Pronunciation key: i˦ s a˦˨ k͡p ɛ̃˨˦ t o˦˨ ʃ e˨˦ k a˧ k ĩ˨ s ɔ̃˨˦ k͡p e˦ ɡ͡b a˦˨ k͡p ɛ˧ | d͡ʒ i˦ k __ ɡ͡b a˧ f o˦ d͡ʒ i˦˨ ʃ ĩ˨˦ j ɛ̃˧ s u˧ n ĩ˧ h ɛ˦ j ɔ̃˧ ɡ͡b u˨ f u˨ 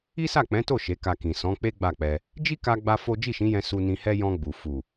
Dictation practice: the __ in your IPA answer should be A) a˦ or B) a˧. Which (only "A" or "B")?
B